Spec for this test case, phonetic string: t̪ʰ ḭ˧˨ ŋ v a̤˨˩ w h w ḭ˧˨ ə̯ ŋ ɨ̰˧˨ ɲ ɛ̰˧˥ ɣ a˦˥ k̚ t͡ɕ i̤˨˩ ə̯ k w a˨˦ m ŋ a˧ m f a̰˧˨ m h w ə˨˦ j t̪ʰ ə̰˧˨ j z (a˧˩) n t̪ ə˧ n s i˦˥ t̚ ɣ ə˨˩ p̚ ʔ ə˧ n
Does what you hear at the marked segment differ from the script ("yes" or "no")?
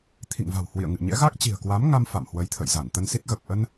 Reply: no